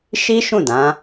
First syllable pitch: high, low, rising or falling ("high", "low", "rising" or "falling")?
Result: high